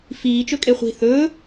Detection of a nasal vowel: absent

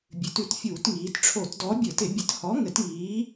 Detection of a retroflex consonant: present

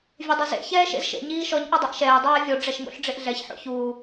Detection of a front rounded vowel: present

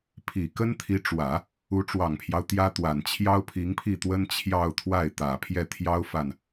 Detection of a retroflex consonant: present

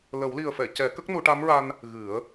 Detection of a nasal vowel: absent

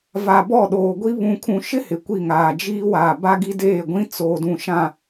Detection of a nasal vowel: present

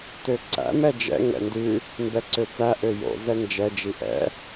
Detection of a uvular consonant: absent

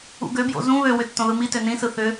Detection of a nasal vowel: present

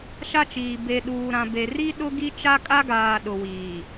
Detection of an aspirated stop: absent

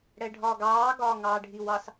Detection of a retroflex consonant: present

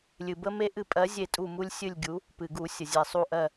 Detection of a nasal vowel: absent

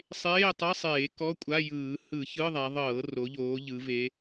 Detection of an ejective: present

